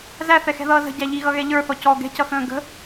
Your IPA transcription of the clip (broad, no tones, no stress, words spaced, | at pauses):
zæθɛxɛ̤ðʌː zə̤ɟæ ʎiɣʌɣɛ ʎə˞θɔ cɔ ɡɛ̤cʌxə̃ː ɡə̤